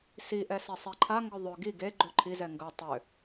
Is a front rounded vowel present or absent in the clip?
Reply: present